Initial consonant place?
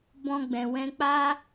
labial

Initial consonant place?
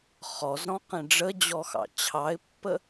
uvular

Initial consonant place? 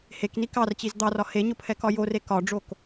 glottal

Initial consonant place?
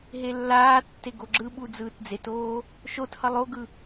glottal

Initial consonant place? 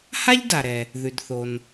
glottal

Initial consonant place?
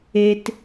alveolar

